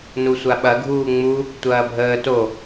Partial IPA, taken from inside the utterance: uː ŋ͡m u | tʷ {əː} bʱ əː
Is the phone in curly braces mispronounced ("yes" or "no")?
yes